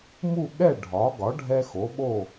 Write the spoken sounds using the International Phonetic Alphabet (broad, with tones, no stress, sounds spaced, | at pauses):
m u˥˨ ɠ ɛ˥˨ ɖʱ ɒ˩˥ ɡ ɒ˩˥ ɖʱ ɛ˦ x o˩˥ ɓ o˥˨